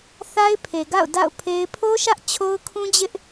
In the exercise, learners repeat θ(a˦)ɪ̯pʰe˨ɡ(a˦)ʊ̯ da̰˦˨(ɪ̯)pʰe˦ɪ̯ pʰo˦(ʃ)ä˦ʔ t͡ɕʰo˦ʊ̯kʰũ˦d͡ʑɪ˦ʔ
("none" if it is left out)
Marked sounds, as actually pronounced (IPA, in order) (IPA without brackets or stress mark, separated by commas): a˦, a̰˦˨, ʊ̯, ʃ